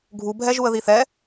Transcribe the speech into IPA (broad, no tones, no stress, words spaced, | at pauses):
ɡʱubʱɛʒuə̯ ðiθɛ